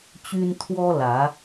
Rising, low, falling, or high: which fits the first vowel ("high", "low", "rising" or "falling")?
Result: high